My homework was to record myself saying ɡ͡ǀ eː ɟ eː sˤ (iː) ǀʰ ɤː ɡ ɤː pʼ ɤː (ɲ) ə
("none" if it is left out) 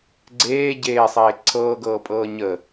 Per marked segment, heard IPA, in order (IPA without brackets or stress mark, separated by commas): eː, ɲ